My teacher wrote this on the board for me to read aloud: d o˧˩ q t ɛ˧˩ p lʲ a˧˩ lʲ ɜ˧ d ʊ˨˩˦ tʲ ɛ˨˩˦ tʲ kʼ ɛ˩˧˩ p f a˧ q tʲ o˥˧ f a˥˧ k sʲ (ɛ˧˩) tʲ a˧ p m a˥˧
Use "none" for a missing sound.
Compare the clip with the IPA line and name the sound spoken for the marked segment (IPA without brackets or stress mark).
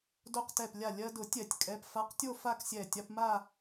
ɛ˧˩